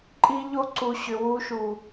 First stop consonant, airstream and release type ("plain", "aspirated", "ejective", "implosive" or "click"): click